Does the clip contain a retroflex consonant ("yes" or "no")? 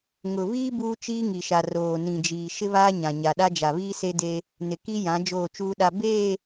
no